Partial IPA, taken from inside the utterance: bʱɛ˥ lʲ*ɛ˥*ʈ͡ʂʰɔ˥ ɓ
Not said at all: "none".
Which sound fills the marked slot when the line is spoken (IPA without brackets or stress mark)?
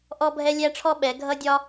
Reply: æ˥